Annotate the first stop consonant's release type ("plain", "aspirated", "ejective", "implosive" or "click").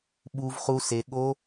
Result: implosive